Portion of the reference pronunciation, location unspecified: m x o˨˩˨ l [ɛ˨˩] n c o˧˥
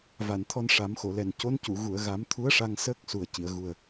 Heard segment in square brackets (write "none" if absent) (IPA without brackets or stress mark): ɛ˨˩